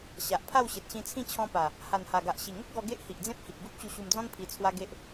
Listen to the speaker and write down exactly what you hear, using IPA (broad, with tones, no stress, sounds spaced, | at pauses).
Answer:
ɕ a˨ ʔ pʰ a˥˧ w ɕ e˨ t̚ ɕ ĩ˧ t͡sʰ ĩ˥˧ t͡ɕʰ ɔ̃˦ p a˨˩ | h a˨˩ n h a˨˩ ɡ a˨ ʔ ɕ i˨˩ ŋ ə˦ k̚ ɡ ɔ˧ ɡ e˦ ʔ h i˨ ʔ d͡z ẽ˦ p̚ h i˨ k̚ ɡ u˦ p̚ t͡ɕ u˧ ɕ u˧ m d͡z ɔ̃˦ n pʰ i˧ t͡sʰ w a˦ ɡ e˦ ʔ